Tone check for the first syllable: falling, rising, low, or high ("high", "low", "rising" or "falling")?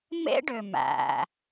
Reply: high